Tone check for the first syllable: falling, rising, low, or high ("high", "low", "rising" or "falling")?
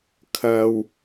low